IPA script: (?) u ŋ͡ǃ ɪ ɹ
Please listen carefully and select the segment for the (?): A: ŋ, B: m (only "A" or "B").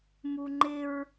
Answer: B